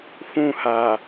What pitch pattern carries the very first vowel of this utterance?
falling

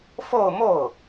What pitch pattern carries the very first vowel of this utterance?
falling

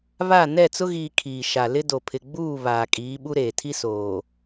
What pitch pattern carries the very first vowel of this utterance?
falling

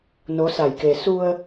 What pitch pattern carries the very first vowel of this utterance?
rising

